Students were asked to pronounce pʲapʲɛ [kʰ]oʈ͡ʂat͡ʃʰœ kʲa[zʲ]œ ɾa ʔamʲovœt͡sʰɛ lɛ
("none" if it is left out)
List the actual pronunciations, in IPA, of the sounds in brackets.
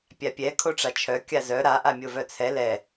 kʰ, z

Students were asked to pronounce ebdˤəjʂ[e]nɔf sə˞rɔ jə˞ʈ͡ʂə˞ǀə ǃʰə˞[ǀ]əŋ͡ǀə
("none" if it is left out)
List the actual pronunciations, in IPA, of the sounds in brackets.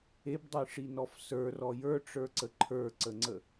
i, ǀ

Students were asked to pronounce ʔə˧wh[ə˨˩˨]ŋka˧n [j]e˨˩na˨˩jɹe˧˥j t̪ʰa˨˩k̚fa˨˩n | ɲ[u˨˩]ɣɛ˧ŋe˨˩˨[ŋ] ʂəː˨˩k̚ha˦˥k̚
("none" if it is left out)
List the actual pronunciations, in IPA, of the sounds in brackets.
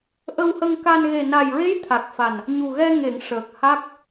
ə˧, ɣ, u˨˩, ŋ

